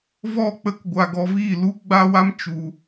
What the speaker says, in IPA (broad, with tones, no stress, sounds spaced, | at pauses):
v ɔ˦˨ k͡p ə˦ k ɡʷ a˧ ɡ ɔ˧ v iː˦˨ l u˦ ɡ͡b a˦ w a˦ m t͡ʃ u˧